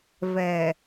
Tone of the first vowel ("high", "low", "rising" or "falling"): low